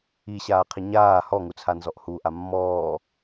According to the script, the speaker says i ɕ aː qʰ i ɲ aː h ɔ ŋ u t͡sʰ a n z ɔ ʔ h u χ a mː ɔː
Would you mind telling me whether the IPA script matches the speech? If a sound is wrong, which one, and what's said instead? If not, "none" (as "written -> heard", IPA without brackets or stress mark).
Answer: χ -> ʔ